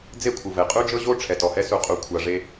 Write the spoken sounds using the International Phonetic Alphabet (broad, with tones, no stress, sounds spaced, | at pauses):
d͡z e˦ kʷʰ ɯ˨ v ɛ˨ qʼ u˦ d͡ʒ ɤ˦ ʑ o˦ ʈ͡ʂʰ ɛ˨ t ɔ˨ h ɛ˦ s u˨ qʼ u˨ kʷʰ a˨ ʐ e˦